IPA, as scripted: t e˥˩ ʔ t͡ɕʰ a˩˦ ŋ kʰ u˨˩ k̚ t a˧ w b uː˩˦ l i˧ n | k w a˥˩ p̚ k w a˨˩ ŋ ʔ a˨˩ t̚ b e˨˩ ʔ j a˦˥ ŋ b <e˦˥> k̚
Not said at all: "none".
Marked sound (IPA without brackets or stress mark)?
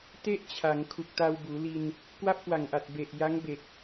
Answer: e˨˩